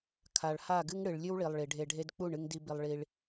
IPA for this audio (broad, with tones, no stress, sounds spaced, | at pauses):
kʰ a˨ ɭ h a˦˨ ɡ ɨ˦ ŋ ɽ ɨ˨ ɭ lʲ ɨ˦ w ɭ i˨ lˠ ɭ i˨ ɖʱ e˧ ɖʱ e˦ d k͡p u˦˨ ɳ ɨ˧ ŋ d i˧ b i˧ lˠ ɭ i˧ ɭ